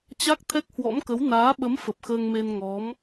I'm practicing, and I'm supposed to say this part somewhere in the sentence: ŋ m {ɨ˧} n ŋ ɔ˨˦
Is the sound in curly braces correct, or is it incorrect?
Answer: incorrect